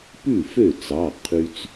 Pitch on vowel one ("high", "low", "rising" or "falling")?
falling